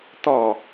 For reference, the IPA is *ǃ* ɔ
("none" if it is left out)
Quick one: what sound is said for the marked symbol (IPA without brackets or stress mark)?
t̪